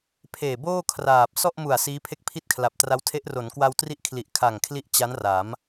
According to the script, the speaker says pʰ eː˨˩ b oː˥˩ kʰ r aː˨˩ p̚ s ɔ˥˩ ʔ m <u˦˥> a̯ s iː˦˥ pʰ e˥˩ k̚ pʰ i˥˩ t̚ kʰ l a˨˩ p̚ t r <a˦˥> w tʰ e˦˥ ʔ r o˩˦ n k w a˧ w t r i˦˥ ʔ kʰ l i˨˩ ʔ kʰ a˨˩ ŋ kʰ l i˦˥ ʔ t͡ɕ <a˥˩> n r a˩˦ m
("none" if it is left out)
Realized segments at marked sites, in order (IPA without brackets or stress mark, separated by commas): u˨˩, a˦˥, a˦˥